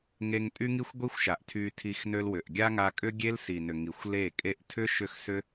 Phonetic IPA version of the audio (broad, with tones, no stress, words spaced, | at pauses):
ŋe˧ŋ tʼy˦ŋi˦xʷɡʷi˦xʷʃa˨ʔ tʰy˧tʰi˧x nø˧lwʏ˨ʔɡʲa˦ŋa˧ kʼʏ˦ɡʲe˦l si˨nʏ˨ ŋi˨xʷle˦˨ kʼe˧ʔtʰʏ˦ ʃʏ˦˨xsʏ˦